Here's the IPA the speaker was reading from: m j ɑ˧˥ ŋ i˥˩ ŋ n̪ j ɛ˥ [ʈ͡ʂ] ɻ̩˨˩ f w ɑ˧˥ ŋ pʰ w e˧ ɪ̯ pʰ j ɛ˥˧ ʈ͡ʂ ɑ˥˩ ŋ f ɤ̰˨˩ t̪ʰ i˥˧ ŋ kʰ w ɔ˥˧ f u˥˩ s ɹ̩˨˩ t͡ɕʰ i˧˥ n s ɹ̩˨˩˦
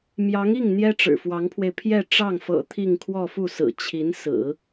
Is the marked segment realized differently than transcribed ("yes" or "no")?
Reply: no